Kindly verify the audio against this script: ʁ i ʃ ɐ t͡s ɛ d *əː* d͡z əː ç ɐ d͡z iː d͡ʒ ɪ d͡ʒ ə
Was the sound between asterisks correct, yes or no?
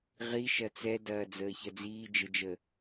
no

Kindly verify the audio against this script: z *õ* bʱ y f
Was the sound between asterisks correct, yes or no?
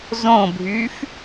yes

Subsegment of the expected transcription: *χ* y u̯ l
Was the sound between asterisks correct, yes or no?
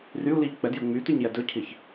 no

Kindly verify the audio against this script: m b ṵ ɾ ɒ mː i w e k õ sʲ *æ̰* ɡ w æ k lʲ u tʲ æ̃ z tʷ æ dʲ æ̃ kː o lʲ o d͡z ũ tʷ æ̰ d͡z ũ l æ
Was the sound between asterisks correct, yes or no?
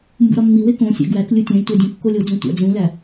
yes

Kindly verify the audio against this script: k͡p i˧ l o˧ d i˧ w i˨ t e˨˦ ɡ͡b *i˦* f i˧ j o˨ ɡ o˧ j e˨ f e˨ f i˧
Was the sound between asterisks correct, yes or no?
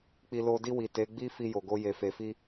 yes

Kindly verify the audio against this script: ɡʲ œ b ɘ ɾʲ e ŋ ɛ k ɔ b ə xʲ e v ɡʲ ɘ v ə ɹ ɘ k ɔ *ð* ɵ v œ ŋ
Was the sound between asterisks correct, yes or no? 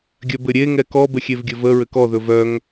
yes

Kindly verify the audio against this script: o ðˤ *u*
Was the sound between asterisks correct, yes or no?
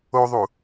yes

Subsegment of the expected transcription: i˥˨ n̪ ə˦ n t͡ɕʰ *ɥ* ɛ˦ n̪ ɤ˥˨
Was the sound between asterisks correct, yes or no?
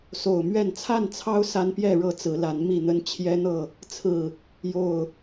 no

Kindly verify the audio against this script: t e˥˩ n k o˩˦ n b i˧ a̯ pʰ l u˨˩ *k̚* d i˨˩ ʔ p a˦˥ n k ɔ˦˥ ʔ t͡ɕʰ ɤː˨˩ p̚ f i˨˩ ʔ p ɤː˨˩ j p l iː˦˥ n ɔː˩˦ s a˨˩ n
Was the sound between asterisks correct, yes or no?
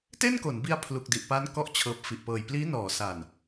yes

